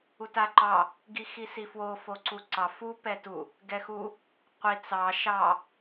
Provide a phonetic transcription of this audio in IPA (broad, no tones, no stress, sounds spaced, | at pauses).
u t a ǃ ɑ | ɡ i x i s i f w o f o ǀ u ǀ ɑ f u p ɛ t u | ɡ ɛ x u | qʷ i t͡s ɑ ʃ ɑ